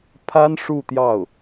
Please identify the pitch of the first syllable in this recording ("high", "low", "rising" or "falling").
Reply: high